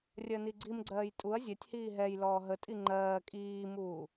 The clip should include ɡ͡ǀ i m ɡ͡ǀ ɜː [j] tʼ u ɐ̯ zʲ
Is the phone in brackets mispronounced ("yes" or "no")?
no